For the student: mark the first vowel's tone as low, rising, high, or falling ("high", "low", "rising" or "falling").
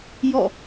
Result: falling